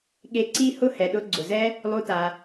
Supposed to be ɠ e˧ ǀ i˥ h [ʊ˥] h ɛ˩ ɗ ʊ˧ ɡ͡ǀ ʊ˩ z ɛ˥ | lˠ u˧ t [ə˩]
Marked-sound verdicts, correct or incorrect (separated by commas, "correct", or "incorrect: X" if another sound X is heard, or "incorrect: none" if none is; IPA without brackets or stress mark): correct, incorrect: a˩